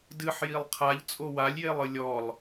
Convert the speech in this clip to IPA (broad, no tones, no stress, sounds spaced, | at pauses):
d ɨ ħ j i lˠ qʰ a ʎ t͡sʼ o w a lʲ j e lˠ ɨ lʲ ɔ lˠ